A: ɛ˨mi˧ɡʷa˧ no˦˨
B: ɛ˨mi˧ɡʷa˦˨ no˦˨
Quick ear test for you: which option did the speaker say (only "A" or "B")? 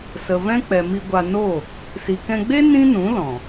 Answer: A